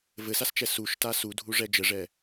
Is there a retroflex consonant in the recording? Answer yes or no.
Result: yes